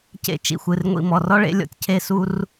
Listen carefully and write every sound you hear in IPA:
c ḛ˥ t͡ʃ ḭ˩˧˩ xʷ ɨ˩˧˩ r ŋʷ ḭ˥˨ m ɔ˩˧˩ r ɔ˥ ɭ ḛ˨˥ lʲ ɔ̰˩ tʲ cʰ e˥˨ s u˥ r

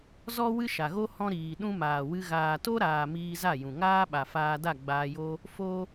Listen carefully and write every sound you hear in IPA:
z ɔ˦ w ɨ˦ ʃ a˨ ɣ o˦ h ɔ̃˦ ɾ iː˨ ɗ ũ˧ m aː˨ w ɨ˧ ɣ aː˨ t o˦ ɾ aː˨ m iː˧ z a˦˨ j ũ˨ ŋ aː˦ ɓ a˨ f aː˧ d a˦˨ ɡ͡b aː˧ j o˦ | f o˧

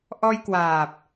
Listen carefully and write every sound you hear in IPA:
ʔ ɔ˧ j k w aː˨˩ p̚

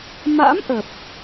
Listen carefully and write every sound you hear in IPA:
m a̰˧˥ m ʔ ə˨˩ p̚

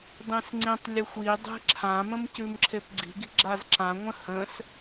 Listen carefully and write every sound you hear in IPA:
dˤ ĩ s ŋ͡ǀ ĩ tˤ lʲ ə xʷ i dˤ e̤ ǁʰ ã m ə̃ m c ʉ m ǁʰ e p ɡ͡ǀ i̤ ɡ i̤ ɡ͡ǁ a z ǁ ã ŋʷ ə̃ h ə̃ s

